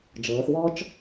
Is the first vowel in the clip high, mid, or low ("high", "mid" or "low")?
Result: mid